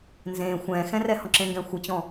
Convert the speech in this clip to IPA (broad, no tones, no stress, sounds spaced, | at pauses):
n z ẽː xʷ ɛ̃ː x ɛ̃ r ɛ h ɔ̃ ǁ ẽ ŋ ɡ ɛ̃ xʷ ɨ t͡ɕ ɔ̃